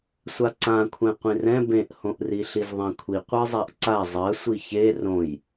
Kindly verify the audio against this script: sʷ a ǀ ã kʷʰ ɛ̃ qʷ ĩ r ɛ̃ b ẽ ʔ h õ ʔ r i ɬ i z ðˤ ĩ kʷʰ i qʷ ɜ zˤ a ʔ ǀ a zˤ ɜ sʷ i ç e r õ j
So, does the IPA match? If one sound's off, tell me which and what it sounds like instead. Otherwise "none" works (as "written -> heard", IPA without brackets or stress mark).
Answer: none